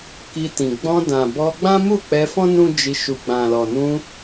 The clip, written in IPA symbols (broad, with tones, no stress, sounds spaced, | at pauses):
k i˧ t ĩ˨ ɡ͡b ɔ̃˧ d ã˨ b ɔ˧ ɡ͡b ã˦ m u˦˨ k͡p ɛ˧ f ɔ̃˦ n ũ˦ d͡ʒ i˧ ʃ u˨ ɡ͡b ã˨ l ɔ˨ n ũ˧